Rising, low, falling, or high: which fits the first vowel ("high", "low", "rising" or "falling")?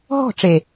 falling